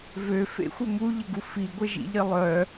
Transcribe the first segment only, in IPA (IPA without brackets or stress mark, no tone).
v